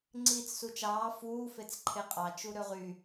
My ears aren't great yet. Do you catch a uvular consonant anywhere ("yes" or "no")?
yes